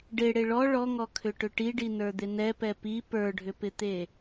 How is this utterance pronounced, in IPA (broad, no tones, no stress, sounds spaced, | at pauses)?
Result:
ɖ e ɽ e ɭ ɔ ɭ ɔ ŋ ɔ kʰ ʏ ʈ ʏ ʈ i ɖ i n ə˞ d̪ ɪ n ɛ p ɛ p i p ə˞ ɖʱ ʏ p ɪ t̪ e